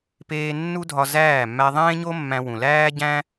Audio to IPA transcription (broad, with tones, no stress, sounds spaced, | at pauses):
p eː˦ nː u˦ dʱ ɒ˧ z æː˦˨ mː æ˧ ðˤ ẽː˦ ɲ o˦ mː æ̃˧ w ũ˨ l æː˦ ɟ æ̃˦